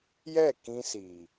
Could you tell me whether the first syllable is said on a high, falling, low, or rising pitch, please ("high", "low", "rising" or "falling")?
falling